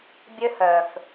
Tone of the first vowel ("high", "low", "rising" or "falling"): high